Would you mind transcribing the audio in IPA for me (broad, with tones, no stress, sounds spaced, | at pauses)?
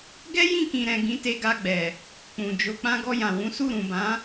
ɡ ɛ˦ j ĩ˦˨ k ĩ˨ ɾ ɛ̃˨ ɡ ĩ˨˦ t e˧ ɡ a˧ ɡ͡b ɛ˨ | k͡p ũ˨ d͡ʒ o˧ k͡p ã˧ ɡ ɔ˧ j ã˨ w ũ˨˦ s u˦˨ ɾ ũ˨ b ã˨˦